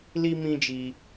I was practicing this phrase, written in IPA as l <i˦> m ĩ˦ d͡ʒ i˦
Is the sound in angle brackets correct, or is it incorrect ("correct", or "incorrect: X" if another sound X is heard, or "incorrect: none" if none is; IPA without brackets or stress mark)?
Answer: correct